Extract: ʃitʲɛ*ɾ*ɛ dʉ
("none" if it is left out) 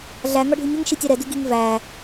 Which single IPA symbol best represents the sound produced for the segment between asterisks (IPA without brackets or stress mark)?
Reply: ɾ